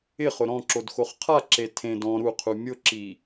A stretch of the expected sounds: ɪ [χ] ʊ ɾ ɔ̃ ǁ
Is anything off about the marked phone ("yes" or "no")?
no